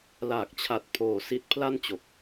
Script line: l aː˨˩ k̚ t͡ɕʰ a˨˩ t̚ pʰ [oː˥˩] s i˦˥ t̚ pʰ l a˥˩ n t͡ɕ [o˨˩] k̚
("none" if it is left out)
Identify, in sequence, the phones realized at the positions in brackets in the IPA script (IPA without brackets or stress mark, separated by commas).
oː˨˩, o˨˩